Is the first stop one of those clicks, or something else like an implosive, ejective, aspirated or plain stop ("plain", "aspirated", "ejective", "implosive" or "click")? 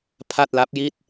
aspirated